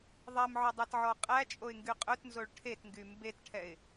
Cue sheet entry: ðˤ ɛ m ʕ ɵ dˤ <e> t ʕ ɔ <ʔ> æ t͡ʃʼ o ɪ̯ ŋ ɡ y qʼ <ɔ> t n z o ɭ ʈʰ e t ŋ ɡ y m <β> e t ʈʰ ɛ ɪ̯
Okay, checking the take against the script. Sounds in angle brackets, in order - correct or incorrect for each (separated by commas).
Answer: correct, incorrect, incorrect, incorrect